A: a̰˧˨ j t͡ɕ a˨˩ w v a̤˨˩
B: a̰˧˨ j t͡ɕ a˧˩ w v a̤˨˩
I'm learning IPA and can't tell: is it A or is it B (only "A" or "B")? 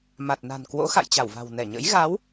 B